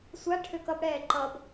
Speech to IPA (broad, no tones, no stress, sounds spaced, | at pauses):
sʷ a ʈʰ ø k ʌ b ɽ ɛː ǃ ʌ b